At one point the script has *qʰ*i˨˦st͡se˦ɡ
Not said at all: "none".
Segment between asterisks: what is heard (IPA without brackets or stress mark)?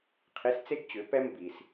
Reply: qʰ